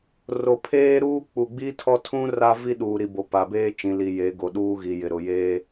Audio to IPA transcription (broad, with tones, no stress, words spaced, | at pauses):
ro˨pʰeː˦ɾuː˦ k͡pu˨ɡ͡bi˦tʰɔ˦tʰũ˦ ra˦vi˦ ɗuː˨ɾi˨bo˨ pa˨beː˦ t͡ʃĩ˨li˨ je˨˦ɡo˨ɗuː˦ ɣi˨jɪ˨ ɾʊ˨jeː˦